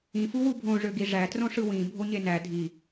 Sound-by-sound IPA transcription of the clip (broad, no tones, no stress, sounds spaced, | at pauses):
ĩ f u w u bʱ õ ʐ ø ɡ i ʐ æ t r õ ʂ ɯ w ĩ bʱ o ɲ e n æ dʱ i